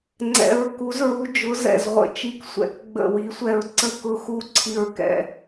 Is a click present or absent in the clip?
present